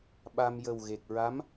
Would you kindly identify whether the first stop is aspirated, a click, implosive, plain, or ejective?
implosive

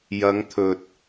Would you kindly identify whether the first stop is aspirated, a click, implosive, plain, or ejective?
aspirated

